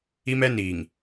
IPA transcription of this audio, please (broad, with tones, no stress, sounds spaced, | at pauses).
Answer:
i˦ m ɛ˦ n iː˨ ŋ